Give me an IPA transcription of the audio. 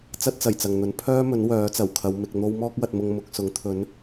t͡s ɐ˥ t̚ t͡s ɐ˨˩ j t͡s ɐ˨ ŋ n̪ ɵ˨˥ n pʰ œː˥ m ɵ˨˥ n w œː˨˥ t͡s ɐ˨˩ w kʰ ɐ˨˧ w m ɪ˧ k̚ n̪ o˥ w m ɔː˥ k̚ w ɐ˧ t̚ m ʊ˧ ŋ m ʊ˧ k̚ s ʊ˨˥ ŋ t̪ʰ ɵ˨˥ n

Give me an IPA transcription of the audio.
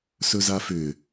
s ɵ z a f ʏ

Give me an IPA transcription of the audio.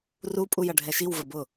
r u pʼ u j ʌ ɖʱ ɛ ʃ i w v ə b ʊ

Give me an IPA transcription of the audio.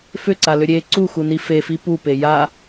f ʏ ǀ a l ʏ ɾʲ e ǀ u x u n i f e f i p u p e j a

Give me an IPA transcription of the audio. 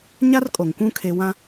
ɲ a˦ r kʼ o˨ ŋ kʷ ũ˦ kʰ e˦ w ã˦

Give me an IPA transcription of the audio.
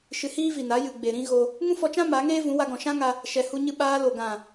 ʃ ɨ˧ h iː˦ v i˨ n a˨˦ j ɨ˨ ɡ͡b e˨ ɾ ĩ˦ ɣ o˧ | ŋ ũ˦ f ɔ˧ t͡ʃ ã˦ m a˨˦ ŋ eː˦ v ũ˨˦ w a˧ ɡ ɔ̃˨ ʃ ã˦ ŋ a˧ | ʃ ɛ˧ h u˧ ɲ ɨ˧ ɓ aː˧ l o˨ ɡ ã˨

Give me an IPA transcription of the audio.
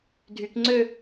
dʱ y k ŋ͡ǀ ø

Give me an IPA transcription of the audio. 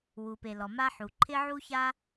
w u˩ p e˩ l ɔ˩ m a˥ ħ u˩ ǃʰ ɪ˥ ʕ u˥ ç a˥

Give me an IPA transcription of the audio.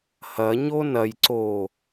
h ɐ ɲ o n ɐ j ǀ o

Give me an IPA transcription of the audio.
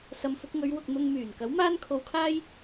s ɐ˨ m f ʊ˧ k̚ ŋ ɵ˨˧ ɥ w ʊ˨ k̚ n̪ ʊ˧ ŋ m yː˨˩ n k ɐ˨˥ w m aː˥ n kʰ o˧ w kʰ aː˥ j

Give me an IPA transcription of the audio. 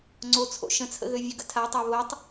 ŋ͡ǀ o t͡sʰ o̰ ʃ ə̃ t͡sʰ ə̰ ɣ ø vʲ œ ɡ ə̰ tʰ a tˤ a β o tˤ

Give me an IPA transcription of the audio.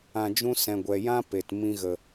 ã˧ d͡ʒ ũ˦ s ɛ̃˨ ɡʷ ɛ˨ j ã˦ p e˨ t m ĩ˦ ɣ ə˧

